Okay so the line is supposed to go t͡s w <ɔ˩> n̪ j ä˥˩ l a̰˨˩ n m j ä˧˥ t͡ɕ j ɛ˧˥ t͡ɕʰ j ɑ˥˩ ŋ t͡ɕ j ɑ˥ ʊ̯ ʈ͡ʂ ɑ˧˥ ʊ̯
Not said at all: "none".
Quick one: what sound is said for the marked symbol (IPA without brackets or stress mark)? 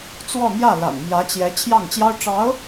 ɔ˥˧